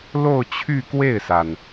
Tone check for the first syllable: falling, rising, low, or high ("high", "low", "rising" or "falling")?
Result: falling